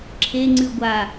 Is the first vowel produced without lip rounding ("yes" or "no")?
yes